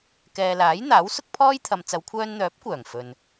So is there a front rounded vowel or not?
yes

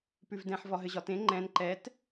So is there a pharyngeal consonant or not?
yes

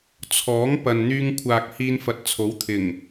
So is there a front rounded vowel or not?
yes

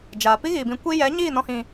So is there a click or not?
no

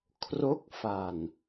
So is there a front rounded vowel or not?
no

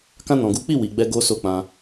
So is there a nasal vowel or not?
yes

